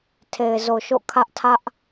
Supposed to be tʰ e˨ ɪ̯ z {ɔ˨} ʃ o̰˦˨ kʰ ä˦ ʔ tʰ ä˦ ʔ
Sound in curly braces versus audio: incorrect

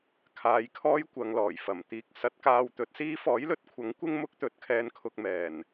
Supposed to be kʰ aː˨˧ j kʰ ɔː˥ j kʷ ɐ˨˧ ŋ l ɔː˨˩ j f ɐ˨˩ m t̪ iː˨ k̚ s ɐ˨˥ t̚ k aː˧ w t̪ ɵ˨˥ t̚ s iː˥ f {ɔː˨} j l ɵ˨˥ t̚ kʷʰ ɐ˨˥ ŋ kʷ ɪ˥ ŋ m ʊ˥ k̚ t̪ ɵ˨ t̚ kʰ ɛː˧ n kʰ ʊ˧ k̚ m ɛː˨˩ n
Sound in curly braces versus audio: incorrect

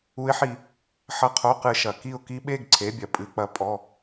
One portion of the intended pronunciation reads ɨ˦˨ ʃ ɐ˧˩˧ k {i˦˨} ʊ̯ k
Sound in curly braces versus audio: correct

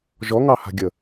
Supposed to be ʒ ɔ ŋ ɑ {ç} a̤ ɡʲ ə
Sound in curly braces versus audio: incorrect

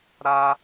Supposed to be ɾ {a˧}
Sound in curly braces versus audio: correct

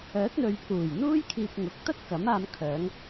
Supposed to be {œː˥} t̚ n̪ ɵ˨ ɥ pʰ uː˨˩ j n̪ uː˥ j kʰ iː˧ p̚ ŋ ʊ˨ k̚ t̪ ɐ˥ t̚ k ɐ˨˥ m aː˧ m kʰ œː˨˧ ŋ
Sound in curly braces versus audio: incorrect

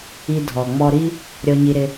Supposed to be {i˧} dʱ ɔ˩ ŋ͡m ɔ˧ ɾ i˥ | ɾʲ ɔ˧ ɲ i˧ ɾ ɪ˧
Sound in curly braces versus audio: correct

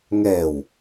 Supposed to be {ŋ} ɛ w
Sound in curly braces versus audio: correct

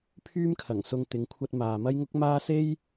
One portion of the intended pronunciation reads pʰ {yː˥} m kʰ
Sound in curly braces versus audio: correct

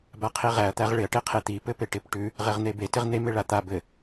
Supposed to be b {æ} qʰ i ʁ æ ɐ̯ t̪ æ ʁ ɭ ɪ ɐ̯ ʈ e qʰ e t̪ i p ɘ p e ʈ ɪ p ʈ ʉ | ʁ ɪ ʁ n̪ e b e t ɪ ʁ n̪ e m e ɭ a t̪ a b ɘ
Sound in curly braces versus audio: incorrect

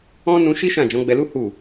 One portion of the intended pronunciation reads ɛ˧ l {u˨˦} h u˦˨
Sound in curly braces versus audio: incorrect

